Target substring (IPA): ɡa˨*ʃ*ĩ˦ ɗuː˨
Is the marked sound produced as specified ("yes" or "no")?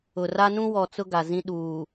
no